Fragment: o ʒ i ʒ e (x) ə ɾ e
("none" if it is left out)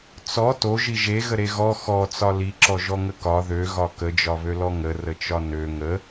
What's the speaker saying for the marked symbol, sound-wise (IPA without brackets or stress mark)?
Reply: ɣ